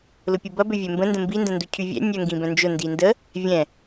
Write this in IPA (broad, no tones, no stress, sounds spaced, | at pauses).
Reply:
l ʊ pʲ u b ɐ b ø vʲ ɛ m b ə̃ n d ə̃ m b i n d ə̃ n d u cʰ y vʲ ɛ̰ nʲ œ ŋ ɡ ĩ b œ̃ n d͡ʒ ʊ n d i n d ə | vʲ ɛ̃